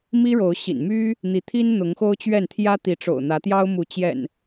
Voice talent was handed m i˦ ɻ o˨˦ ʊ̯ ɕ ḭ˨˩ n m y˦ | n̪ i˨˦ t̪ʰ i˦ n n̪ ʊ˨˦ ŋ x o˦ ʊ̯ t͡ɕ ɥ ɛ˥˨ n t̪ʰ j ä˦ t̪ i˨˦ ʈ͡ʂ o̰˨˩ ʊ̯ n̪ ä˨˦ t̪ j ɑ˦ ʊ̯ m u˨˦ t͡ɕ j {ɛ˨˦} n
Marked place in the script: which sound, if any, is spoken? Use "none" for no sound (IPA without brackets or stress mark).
ɛ̰˨˩